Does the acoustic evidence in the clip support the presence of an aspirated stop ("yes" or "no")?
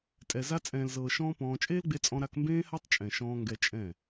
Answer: no